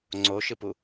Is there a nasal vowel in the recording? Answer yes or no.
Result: no